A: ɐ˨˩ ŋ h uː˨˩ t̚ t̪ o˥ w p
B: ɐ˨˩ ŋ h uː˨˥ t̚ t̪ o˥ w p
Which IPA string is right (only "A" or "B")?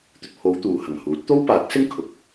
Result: B